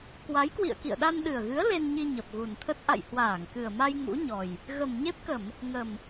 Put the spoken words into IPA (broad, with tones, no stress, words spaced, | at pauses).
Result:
kwa˨˦jkwḭ˧˨ə̯kḭ˧˨ə̯ɗa˧n ɗɨ˨˩ə̯ɣɨ˨˦ə̯ le˧nɲi˧ ɲə˨˩p̚ɣu˨˩nt̪ʰə˦˥t̚ ʔa̰˧˨j hwaː˧˩ŋkɨ˨˩ə̯ma˧j ŋṵ˧˥ɲɔ˨˩j | ɣə˨˩mɲe˦˥p̚kə˧˩˨m | ŋə˨˩m